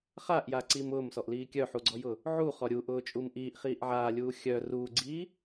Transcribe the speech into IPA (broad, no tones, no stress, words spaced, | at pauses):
χaʔjaǀim ʊːmsɔʔliː kʲœħuɡ͡ǀɔjʊ | ʕuχɔ ɾʲuʔʊːt͡ʃʼum ʔiːʔχiːʔ ʕaːlʲuː xʲœ ruːɡ͡ǀiː